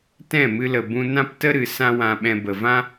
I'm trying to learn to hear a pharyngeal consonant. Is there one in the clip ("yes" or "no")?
no